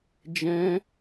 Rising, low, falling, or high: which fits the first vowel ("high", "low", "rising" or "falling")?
high